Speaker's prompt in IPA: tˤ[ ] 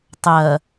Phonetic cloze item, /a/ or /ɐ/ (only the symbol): ɐ